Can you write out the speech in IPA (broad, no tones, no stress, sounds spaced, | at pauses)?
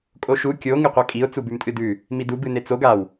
kʼ o ʃ u kʲ o ŋ ɨ qʷ a kʼ i ʊ̯ t͡s u b ʉ m tʼ ɨ d ʉ | m i d u b ɨ n e t͡s o ɡ a w